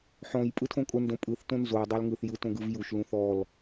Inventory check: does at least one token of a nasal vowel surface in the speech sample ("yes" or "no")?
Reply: yes